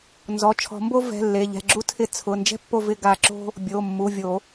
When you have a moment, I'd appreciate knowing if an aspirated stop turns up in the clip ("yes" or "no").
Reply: yes